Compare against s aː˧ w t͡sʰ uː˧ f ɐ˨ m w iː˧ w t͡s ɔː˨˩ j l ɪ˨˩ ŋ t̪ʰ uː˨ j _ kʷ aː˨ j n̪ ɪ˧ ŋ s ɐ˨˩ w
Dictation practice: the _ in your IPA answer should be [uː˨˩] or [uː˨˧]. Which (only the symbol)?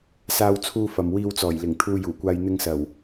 uː˨˩